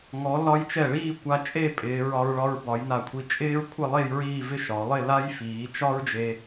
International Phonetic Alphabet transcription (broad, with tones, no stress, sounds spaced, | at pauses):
ŋ ɔ˩˧ l ɒ˧ j t͡ʃ ɛ˧˩ ɭ iː˥˧ kʷ a˧ t͡ʃʼ e˥˧ pʼ ɪː˩˧ ɹ ɒ˧ ɹ ɭ ɒ˧ ɹ b ɒ˩˧ j n a˧˩ kʷʰ i˧˩ t͡ʃʼ ɪː˥ ɹ kʷʰ ɪ˥˧ lˠ e˥˧ j ɹ iː˥˧ v ɪ˥˧ ʃ ɒ˩˧ lˠ ɪ˥˧ l a˥ j f iː˩˧ t͡ʃ ɒ˥ ɹ d͡ʒ e˧